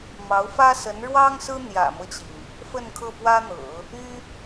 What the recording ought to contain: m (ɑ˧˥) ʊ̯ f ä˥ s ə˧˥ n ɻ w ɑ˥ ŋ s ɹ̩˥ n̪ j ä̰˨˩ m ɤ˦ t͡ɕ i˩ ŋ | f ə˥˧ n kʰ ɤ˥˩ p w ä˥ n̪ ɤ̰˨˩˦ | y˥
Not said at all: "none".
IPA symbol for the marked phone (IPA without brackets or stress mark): ɑ˧˥